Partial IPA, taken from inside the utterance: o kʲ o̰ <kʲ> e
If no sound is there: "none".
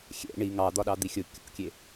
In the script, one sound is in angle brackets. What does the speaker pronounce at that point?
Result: kʲ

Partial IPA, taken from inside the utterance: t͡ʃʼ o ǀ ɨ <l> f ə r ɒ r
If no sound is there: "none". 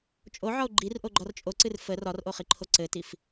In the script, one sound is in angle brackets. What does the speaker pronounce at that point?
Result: r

